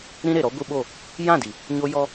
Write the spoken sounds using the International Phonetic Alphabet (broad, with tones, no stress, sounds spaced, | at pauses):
ɾ ĩ˦ ɾ e˨ ɾ ɔ˦ ɡʷ ɨ˦ ɓ o˦˨ | j ã˦˨ d i˨ | ɲ o˦ j ɔ˦